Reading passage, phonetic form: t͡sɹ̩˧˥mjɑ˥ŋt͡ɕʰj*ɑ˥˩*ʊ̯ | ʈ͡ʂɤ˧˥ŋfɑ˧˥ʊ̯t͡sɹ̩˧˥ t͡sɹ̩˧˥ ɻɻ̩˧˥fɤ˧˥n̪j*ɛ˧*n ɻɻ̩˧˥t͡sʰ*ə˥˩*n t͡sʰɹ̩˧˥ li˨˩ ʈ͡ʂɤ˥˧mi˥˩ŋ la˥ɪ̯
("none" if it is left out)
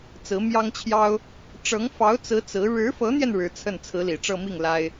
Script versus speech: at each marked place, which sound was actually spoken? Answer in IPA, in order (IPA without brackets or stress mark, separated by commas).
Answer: ɑ˥, ɛ˧, ə˥˩